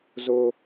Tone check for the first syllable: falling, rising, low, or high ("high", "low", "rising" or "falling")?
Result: high